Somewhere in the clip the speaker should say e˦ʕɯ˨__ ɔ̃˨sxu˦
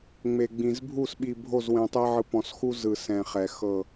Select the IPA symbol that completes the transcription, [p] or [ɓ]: p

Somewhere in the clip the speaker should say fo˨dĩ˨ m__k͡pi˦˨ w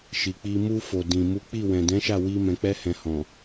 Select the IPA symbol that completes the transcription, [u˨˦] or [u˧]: u˨˦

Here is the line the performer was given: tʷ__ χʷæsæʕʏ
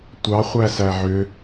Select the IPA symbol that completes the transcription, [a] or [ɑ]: ɑ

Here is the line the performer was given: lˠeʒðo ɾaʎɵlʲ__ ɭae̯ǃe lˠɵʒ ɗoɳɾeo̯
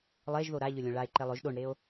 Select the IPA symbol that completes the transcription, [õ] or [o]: õ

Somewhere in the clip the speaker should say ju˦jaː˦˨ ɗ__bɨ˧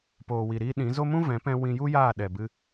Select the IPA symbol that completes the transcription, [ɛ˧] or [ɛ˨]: ɛ˨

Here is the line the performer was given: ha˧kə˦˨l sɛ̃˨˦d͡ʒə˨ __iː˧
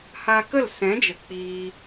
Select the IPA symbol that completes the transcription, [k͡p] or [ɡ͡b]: k͡p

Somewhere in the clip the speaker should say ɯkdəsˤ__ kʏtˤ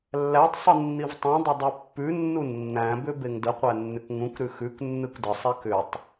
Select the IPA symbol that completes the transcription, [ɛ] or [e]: ɛ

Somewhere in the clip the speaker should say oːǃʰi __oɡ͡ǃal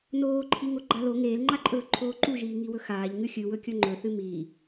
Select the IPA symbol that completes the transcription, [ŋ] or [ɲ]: ŋ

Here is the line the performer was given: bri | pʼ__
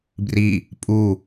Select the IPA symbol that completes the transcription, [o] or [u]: u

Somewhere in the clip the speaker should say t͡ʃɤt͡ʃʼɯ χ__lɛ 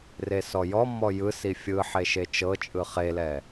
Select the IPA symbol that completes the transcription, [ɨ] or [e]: e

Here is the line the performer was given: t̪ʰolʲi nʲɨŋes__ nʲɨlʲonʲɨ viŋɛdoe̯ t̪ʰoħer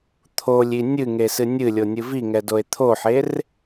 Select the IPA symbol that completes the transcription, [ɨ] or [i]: ɨ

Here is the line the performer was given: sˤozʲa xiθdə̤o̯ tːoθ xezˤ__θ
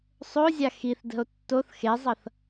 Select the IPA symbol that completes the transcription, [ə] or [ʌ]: ʌ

